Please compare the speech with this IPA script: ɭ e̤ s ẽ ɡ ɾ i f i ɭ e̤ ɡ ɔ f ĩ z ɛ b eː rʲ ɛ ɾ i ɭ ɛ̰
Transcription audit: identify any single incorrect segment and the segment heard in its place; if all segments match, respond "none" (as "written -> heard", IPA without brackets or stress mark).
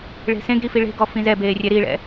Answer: none